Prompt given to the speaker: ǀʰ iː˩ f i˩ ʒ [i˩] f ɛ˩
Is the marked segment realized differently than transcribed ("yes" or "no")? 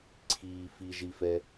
no